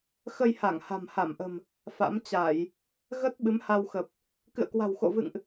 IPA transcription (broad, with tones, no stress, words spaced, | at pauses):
xə˧jha˧˩ŋ ha̤˨˩mha˧˩mʔə̤˨˩m | fa̰˧˥mt͡ɕa˧˩˨j | ɣə˦˥t̚ ɓɨ˨˦mha˧wxə˨˩p̚ | kɨ̰˧˨ə̯kwa̤˨˩wxo̰˧˨vɨ̰˧˨ŋʔ